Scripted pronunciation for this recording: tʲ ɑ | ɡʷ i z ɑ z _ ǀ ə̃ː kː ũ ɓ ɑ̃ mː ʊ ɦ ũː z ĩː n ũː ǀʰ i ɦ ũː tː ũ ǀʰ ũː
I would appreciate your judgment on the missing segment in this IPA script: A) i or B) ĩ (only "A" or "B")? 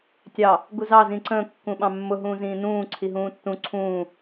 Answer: B